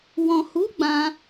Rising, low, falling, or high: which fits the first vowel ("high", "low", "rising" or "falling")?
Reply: low